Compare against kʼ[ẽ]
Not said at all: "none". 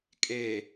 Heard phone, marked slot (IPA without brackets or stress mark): e